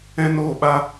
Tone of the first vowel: high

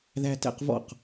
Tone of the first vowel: high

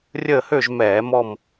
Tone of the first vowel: falling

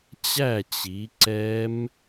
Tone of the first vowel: falling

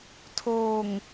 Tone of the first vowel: low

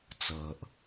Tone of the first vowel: low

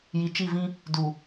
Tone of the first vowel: low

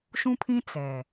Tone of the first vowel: high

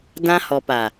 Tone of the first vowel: high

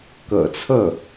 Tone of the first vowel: low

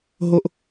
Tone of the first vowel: high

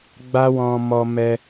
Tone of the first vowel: high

